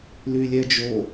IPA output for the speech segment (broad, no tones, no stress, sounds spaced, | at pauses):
l y lʲ ɛ d͡ʒ o